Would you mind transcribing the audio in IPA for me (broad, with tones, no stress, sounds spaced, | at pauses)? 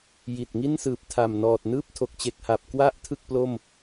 j i˨˩ t̚ ŋ i˥˩ n s ɯː˨˩ p̚ tʰ a˨˩ m n ɔː˨˩ t̚ n ɯː˥˩ p̚ tʰ o˨˩ k̚ t͡ɕ e˨˩ k̚ h a˨˩ p̚ k w a˦˥ ʔ tʰ ɯ˥˩ k̚ p l o˥˩ m